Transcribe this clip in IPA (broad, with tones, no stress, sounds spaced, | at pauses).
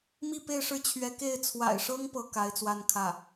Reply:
m i˥˧ p e˥˧ ɪ̯ ʂ ɻ̩˥˩ t͡ɕʰ ɥ ɛ˧˥ k e˥˩ ɪ̯ t͡sʰ w a̰˨˩ ɪ̯ ʂ ɤ˥ ŋ p ɤ˥ k a˧˥ ɪ̯ t͡s w a˥˧ n kʰ ä˥˩